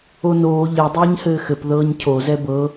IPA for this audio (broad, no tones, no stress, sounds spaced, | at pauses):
o n oː ʎ ɘ dˤ ɛː ɲ h ɘː x ɘ p ð ɤː ɲ cʰ o z ɛ b ɤ